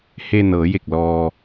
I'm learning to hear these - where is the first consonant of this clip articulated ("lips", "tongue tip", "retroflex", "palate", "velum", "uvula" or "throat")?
throat